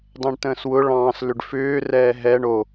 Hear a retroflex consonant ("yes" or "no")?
yes